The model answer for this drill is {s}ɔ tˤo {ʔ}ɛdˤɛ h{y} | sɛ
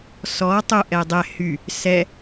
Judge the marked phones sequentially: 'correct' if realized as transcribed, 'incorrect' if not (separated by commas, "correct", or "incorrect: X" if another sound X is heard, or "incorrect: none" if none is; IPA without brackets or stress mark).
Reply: correct, correct, correct